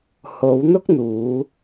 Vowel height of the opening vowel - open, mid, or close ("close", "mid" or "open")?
mid